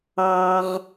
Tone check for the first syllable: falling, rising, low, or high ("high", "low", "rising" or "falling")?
low